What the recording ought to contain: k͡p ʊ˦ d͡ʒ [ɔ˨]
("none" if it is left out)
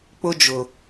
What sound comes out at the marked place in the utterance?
ʊ˨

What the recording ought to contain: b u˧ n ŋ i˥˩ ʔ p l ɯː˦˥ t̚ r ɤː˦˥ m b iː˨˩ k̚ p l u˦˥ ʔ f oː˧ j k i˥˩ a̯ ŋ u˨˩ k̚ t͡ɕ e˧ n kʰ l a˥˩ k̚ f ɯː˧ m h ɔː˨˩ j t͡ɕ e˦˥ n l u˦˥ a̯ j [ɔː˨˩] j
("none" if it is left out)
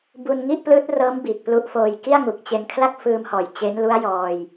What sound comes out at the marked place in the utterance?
ɔː˧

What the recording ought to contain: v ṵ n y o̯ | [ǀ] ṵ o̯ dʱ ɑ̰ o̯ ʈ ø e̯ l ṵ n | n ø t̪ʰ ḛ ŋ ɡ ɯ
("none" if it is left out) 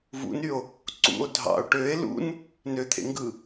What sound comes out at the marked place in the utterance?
ǀ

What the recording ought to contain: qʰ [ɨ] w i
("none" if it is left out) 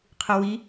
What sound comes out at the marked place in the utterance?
ɨ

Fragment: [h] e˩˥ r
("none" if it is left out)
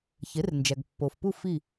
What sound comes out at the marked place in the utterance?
ç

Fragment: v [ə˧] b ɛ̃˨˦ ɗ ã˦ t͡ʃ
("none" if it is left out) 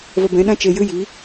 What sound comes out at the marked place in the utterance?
ə˧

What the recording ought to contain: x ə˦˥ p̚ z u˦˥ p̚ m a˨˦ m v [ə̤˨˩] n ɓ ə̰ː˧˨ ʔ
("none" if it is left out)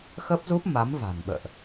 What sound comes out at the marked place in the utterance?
a̤˨˩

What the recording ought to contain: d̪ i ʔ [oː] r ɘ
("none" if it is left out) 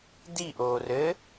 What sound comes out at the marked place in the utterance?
oː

